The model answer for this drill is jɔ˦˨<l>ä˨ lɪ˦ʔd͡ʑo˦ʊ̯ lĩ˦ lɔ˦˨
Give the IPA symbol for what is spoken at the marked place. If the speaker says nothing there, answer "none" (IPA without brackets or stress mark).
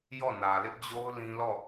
n